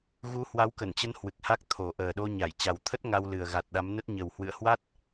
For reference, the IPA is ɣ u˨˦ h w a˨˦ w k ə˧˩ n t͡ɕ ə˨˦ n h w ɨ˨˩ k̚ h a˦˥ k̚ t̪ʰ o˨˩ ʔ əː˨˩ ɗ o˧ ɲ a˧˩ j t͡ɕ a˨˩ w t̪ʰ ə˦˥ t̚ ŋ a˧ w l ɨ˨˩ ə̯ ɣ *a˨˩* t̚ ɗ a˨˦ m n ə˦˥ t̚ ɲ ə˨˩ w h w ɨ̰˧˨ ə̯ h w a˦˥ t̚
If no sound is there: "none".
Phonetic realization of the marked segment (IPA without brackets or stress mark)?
a˨˩